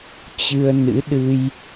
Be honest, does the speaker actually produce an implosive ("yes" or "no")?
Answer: yes